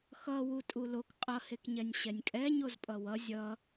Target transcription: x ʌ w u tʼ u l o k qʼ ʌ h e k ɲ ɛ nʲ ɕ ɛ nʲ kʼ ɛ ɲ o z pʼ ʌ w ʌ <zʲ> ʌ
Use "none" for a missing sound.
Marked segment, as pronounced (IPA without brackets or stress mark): zʲ